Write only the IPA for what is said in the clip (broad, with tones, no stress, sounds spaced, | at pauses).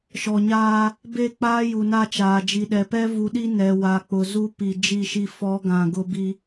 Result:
ʃ ɔ˨ ɲ aː˦ | b e˦˨ k͡p aː˦ j u˨ n a˦ t͡ʃ aː˨ d͡ʒ i˨ ɗ ɛ˨ p ɛ˦ v u˨˦ ɗ i˦ n ɛ˨ w a˨ k͡p ʊ˨ z u˦ p i˨ d͡ʒ i˦˨ ʃ i˦ f ɔ˨˦ ɡ ã˨ ɡ ʊ˦ b i˦